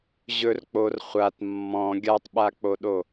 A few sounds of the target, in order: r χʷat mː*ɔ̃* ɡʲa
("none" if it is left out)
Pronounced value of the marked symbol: ɔ̃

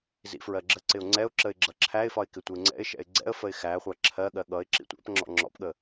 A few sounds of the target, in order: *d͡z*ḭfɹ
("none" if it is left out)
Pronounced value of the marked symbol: z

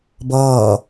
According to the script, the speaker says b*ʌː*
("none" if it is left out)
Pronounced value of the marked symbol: ʌː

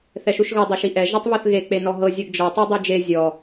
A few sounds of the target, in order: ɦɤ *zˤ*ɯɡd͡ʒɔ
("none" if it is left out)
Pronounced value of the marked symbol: zʲ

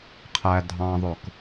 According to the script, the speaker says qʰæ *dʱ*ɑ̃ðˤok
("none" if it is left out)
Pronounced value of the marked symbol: dʱ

